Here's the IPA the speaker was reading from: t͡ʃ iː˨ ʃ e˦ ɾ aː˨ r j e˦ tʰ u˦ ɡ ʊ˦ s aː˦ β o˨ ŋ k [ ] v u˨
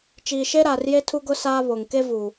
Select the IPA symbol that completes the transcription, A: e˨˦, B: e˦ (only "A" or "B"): B